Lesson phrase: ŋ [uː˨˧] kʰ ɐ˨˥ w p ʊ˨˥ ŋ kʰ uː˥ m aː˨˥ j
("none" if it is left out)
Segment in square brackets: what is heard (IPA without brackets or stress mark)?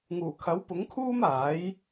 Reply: uː˨˩